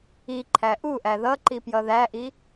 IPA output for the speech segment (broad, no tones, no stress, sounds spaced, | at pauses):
i ǃʰ æ ʔ u ʔ æ ð ʌ ǃ i p j ʌ ð æ ʔ i